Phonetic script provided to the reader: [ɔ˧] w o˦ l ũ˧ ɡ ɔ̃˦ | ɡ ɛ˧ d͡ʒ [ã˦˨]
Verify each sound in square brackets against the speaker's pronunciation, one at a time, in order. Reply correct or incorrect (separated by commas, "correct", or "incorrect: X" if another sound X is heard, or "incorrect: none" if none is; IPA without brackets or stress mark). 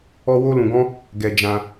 incorrect: ɔ˦, incorrect: ã˧